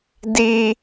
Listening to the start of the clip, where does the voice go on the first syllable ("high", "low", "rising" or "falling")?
high